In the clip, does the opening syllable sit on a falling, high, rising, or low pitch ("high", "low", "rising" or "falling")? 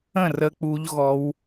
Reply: falling